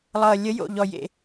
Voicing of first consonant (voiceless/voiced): voiced